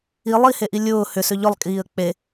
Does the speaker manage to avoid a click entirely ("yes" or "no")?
yes